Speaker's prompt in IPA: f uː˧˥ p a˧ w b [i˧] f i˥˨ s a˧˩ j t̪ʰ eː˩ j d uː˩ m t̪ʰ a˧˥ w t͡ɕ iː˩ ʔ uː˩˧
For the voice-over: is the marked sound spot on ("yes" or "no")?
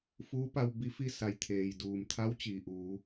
no